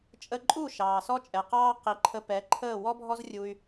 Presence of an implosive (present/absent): absent